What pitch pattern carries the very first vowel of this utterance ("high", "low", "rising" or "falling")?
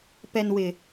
low